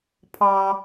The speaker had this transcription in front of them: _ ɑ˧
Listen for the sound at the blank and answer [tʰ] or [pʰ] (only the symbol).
pʰ